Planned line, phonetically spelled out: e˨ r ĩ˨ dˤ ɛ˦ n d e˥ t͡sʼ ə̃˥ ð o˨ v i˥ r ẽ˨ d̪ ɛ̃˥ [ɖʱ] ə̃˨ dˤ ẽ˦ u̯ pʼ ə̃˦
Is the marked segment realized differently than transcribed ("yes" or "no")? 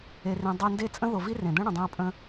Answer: yes